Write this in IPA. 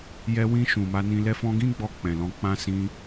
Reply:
jɛ˧wĩ˧ ʃũ˨ma˧nĩ˧ lɛ˧fɔ̃˧ ɡĩ˦ɡ͡bɔ˧ k͡pɛ̃˨lɔ̃˧k͡pã˦sĩ˦

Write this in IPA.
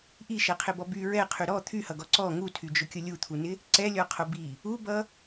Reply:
ʔiʃɛqʰɪbɔ by ɹɛqʰy ɾɔ t̪ʰyhʌɡɔ ǀɔ ŋutʰyd͡ʒʊkʲʊ lʲut̪ʰunɪ | ǀɛlʲɔqʰʊ bi | ubʌ

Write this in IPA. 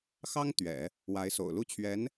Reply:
xɑ˥ŋ t̪ɥɛ̰˨˩˦ | wa˧˥ɪ̯so̰˨˩ʊ̯ lu˥˩t͡ɕʰɥɛ˧˥n

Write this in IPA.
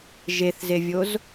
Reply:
ʒeθzevʲoz

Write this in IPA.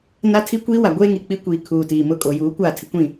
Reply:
na˦tʰi˦kʷiː˦ wa˨ɡʷeː˦ŋi˨k͡pi˦ kʷiː˨ kʰuː˨tiː˨mʊ˦˨ kʼo˨juː˨˦kʷaː˦˨ tʰɪ˦kʷĩ˦˨

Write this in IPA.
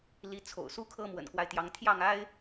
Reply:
li˧˥t͡sʰo̰˨˩ʊ̯su˥kʰɤ˥ mwə̰˨˩nkwa˦ɪ̯t̪jɑ˧˥ŋ t̪ʰjɑ˥˩ŋa˥ɪ̯

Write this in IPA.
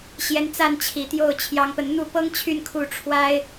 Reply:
ɕjɛ˧˥nt͡sa˥˩nt͡ɕʰi˨˩t̪jo˥˩ʊ̯ t͡ɕʰjɑ˥ŋpə˥˧n n̪u˥˩pɤ˥ŋt͡ɕʰy˥˧n kʰu˥˩ʈ͡ʂʰwa˥ɪ̯

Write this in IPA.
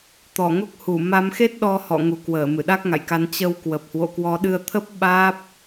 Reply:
t̪ɔ˧˩ŋo˦˥k̚hu˧˩ ma˨˦mxe˦˥t̚ɗɔ˧ hɔ̰˧˨ŋu˨˩kwəː˧˩ mɨ˧˩ɗa˦˥k̚ŋa̰˧˨jka˨˦n t͡ɕə˧wkwə˨˩p̚ hwo̰˧˨kwɔ˨˦ɗɨ˧ə̯t̪ʰə˦˥p̚ ɓaː˦˥p̚

